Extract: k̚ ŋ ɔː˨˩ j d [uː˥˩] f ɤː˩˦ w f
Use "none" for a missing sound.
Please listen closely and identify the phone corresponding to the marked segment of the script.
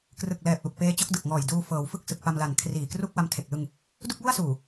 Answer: uː˧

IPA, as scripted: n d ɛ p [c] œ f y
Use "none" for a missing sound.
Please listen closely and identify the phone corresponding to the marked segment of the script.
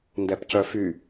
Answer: c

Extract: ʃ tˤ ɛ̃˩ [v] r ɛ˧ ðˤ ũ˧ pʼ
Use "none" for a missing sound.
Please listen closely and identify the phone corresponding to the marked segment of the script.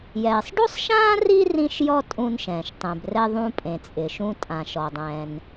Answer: b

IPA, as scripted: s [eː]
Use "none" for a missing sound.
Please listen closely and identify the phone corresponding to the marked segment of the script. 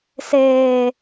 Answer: eː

